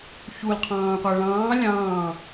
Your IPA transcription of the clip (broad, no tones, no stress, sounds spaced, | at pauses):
ç u l qʰ ɑ̃ː qʷ æ ɭ ɑ̃ː lʲ ɑ̃ː